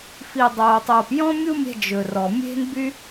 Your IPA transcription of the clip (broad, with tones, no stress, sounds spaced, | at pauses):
f i˨ dˤ oː˨ tˤ oː˨ p j ɔ̃˦ mʲ u˦ mʲ ɛ̤˧ d͡ʒ ɵ˨ r ɔ˨ mʲ e̤˦ n b y˦